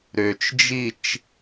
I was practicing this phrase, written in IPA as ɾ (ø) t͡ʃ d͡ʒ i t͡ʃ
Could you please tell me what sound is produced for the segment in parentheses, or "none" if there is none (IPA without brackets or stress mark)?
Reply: ø